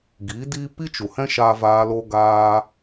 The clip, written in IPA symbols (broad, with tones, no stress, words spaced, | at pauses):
ɡi˨˦diː˦ pi˦t͡ʃu˨hɛ̃˦ʃaː˧ vaː˦lo˦ ɡaː˧